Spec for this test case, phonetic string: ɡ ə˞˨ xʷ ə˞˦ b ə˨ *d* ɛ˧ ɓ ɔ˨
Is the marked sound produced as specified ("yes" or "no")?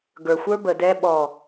yes